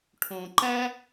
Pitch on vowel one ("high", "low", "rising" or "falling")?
low